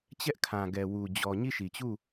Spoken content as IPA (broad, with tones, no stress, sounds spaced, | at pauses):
t͡ɕ ɛ˦ ʔ kʰ ã˨ ɡ ɛ˨ w u˨ d͡ʑ ɔ˨ ɲ i˦˨ ʃ i˨ t͡ɕ u˦˨